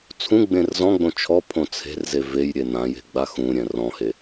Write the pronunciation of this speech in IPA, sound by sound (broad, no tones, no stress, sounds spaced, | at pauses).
t͡sʰ ũ ɡ͡b ẽ r z ɔ̃ ɡ͡b õ t͡ʃʰ ɔ pʰ õ t͡sʰ e̤ r z e v e j ɾʲ e n ã j e̤ ɡ͡b a x ũ ɾʲ ɛ̃ r ɔ̃ h e